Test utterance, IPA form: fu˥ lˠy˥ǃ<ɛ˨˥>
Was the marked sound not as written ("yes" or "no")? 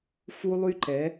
no